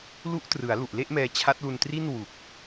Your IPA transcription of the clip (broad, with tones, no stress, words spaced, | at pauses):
lu˦˥ʔtrɯ˩˦a̯ lu˨˩ʔle˥˩ʔmɛː˧ t͡ɕʰa˦˥t̚lu˧ntri˥˩n wu˨˩k̚